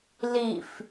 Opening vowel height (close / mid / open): close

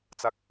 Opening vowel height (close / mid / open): open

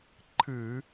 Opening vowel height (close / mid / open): close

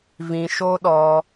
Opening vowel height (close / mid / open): close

